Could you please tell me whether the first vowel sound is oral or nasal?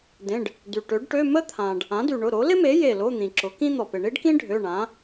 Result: nasal